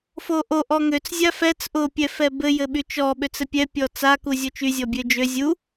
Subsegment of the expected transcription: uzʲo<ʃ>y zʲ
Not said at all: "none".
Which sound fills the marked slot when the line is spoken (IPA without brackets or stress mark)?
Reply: t͡ʃ